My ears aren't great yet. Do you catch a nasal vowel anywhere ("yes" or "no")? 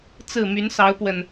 no